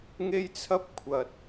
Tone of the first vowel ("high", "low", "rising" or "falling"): high